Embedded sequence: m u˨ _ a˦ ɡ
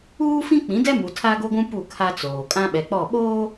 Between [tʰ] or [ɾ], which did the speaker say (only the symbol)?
tʰ